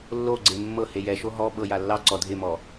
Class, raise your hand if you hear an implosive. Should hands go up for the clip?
yes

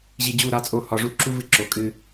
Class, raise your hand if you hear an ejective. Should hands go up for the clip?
yes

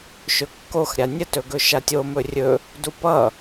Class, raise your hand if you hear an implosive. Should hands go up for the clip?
no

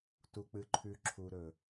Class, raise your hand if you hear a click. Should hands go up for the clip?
yes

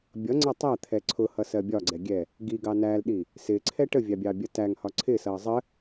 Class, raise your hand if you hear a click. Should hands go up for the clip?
yes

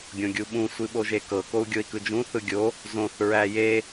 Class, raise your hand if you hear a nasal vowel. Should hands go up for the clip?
yes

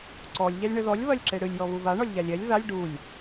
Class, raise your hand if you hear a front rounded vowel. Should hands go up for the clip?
no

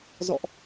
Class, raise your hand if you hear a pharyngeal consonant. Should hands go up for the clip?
no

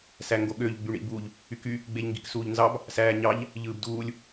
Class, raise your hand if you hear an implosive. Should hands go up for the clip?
yes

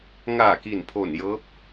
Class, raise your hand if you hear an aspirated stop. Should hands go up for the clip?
yes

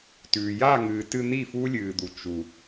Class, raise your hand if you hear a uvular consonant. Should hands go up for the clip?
no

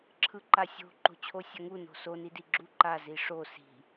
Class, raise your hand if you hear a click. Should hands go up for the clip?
yes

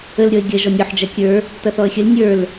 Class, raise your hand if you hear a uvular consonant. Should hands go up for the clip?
no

